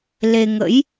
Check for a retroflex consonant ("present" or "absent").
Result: absent